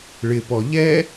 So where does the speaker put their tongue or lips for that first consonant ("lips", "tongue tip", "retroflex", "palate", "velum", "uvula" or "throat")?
retroflex